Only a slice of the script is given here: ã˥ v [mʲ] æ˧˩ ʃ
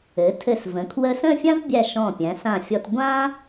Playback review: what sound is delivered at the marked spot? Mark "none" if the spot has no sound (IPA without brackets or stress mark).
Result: bʲ